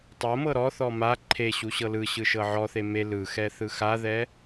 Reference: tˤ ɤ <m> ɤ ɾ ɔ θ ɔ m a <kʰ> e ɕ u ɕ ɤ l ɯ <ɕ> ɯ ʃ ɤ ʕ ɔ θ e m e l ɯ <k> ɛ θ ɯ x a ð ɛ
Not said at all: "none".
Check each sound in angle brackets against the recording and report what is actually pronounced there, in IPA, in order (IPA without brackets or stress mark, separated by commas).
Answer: m, ǃʰ, ɕ, x